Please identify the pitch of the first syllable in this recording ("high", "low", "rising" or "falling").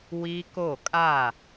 high